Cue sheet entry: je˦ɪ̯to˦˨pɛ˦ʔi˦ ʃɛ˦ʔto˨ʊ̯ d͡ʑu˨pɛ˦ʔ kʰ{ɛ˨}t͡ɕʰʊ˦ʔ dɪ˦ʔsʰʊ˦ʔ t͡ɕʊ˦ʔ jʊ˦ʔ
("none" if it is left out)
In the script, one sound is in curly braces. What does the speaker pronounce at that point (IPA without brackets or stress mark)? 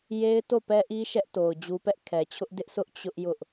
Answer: ɛ˨